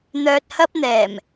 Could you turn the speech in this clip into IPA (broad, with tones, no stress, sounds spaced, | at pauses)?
n̪ œː˧ t̚ h ɐ˥ p̚ n̪ ɛː˨˩ m